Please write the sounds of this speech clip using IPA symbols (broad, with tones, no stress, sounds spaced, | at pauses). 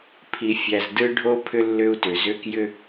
pʰ i˨ fʲ æ˨ z d ɯ˦ ɖʱ o˥ pʰ ʏ˦ lː ʏ˦ u̯ t ʏ˩ z ʏ˦ k j ʏ˥